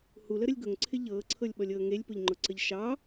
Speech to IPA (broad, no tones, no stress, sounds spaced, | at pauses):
h u l ə ɾ ə lʲ ɡ ʊ ŋ ǀʰ ɪ ʎ ɤː ǀʰ ɤ lʲ ɓ ɔ lʲ ɤː ŋ e lʲ p ʊ ʎ ŋ͡ǃ ʊ ǀ ə ʎ ʃ ɑ